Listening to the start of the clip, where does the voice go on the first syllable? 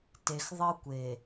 low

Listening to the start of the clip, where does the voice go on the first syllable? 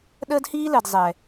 high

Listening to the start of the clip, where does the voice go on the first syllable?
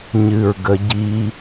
low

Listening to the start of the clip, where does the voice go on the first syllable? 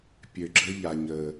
low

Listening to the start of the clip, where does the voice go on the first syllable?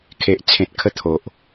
low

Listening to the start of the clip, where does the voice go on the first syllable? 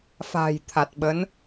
low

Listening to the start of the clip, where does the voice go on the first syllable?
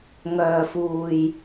low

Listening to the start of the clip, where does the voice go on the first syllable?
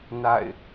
falling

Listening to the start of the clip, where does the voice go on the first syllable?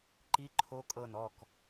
rising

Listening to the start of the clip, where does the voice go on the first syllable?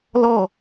falling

